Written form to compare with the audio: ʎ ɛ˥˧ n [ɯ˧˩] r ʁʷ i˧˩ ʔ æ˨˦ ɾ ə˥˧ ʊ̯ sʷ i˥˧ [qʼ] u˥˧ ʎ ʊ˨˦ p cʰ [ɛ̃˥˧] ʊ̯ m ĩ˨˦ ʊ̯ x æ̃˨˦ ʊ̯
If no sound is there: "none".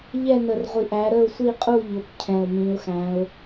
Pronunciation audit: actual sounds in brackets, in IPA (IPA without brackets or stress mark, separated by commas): ə˧˩, qʼ, ɛ̃˧˩